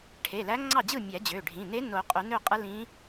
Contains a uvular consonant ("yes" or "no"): yes